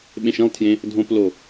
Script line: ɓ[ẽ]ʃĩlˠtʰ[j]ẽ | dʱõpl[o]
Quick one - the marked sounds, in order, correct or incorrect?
correct, correct, correct

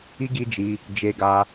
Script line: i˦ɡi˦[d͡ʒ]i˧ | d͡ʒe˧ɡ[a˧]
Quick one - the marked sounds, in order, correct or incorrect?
correct, correct

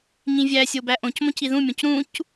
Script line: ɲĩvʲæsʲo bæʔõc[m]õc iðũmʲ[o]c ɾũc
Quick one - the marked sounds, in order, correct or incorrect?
correct, incorrect: õ

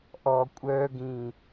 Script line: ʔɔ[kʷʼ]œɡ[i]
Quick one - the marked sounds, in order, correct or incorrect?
correct, incorrect: ĩ

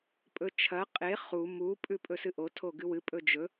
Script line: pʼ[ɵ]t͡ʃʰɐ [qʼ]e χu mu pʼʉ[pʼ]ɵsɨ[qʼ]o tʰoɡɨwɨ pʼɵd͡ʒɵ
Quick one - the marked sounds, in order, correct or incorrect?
correct, correct, correct, incorrect: ʔ

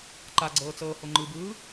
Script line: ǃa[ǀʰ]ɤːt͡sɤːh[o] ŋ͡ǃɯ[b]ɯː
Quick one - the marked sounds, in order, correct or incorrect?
incorrect: ɡ͡ǀ, correct, correct

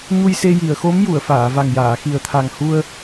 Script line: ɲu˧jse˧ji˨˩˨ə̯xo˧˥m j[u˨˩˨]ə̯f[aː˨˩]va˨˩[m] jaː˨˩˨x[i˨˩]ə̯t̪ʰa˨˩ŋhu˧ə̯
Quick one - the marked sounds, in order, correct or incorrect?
correct, incorrect: aː˨˩˨, incorrect: ŋ, correct

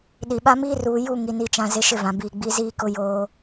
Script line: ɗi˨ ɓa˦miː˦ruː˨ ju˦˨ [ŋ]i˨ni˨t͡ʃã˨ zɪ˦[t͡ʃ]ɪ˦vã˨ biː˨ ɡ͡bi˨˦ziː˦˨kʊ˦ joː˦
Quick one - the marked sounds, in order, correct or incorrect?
correct, incorrect: ʃ

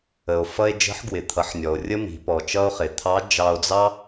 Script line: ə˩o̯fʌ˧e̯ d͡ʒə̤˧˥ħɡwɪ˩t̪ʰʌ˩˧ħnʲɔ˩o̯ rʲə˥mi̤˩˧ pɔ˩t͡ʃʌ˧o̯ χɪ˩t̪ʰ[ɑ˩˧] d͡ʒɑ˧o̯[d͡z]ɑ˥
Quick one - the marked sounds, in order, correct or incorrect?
incorrect: ɑ˧˥, correct

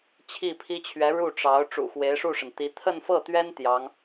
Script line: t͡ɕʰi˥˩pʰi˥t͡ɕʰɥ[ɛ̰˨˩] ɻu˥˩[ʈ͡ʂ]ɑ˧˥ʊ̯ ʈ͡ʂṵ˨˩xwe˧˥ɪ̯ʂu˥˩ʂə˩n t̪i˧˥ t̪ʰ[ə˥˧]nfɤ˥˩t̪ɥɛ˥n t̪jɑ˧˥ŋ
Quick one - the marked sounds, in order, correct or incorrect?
incorrect: ɛ˧˥, correct, correct

